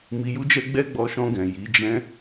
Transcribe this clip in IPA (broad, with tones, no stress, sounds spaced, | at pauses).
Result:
m i˧ j u˦ d͡ʒ ɛ˦ ɡ͡b ɛ˦ ɡ͡b ɔ˧ ʃ ɔ̃˧ ɡ ɛ̃˨ j i˨˦ d͡ʒ ɛ̃˦